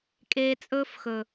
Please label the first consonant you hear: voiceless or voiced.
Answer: voiceless